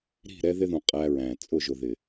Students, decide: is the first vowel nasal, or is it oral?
oral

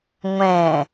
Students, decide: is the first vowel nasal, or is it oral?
nasal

